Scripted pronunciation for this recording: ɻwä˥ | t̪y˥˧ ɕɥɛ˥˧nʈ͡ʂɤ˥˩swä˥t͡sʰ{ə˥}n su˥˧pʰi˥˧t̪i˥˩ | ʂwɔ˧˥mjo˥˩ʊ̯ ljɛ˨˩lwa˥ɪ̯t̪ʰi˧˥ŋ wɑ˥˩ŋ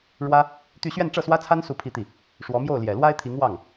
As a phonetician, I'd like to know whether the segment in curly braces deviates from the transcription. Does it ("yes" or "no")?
yes